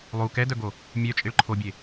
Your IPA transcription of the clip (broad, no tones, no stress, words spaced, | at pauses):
lˠu kɛdœɡo | mʲœt͡ʃʼiɭ ǃʰobʲe